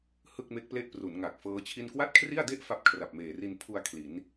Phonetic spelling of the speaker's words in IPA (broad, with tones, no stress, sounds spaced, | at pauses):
h ɯ˥˩ k̚ m e˦˥ k̚ p l e˥˩ ʔ p r u˩˦ n ŋ a˨˩ k̚ f ɤː˦˥ t͡ɕʰ i˥˩ n k w a˥˩ t̚ kʰ r i˥˩ a̯ d e˥˩ ʔ f a˥˩ p̚ kʰ r a˨˩ p̚ m eː˨˩ r i˧ n pʰ u˧ a̯ kʰ l i˩˦ n